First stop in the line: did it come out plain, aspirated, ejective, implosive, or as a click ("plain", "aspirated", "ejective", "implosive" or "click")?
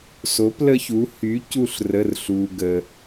plain